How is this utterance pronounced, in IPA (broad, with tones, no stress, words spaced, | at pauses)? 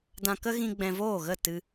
dã˧ kə˦ɣĩ˧ ɡ͡bɛ̃˧voː˦˨ɣə˦˨ tɨ˦